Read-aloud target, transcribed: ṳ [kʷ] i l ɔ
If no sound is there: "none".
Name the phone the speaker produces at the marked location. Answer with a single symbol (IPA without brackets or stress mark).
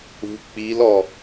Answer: k͡p